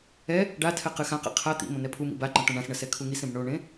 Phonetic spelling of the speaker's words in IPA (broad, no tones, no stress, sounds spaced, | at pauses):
ɛ | ɖ a tʰ ɛ q ɨ x ã q ɛ̰ qʰ a t̪ ḭ m õ n ɛ pʰ u m ḭ b a ǃ ɐ̃ t̪ ɐ̃ ɳ ã s ɳ ɐ s ɛ kʰ u ŋ i s ẽ b ɳ o ɳ ẽ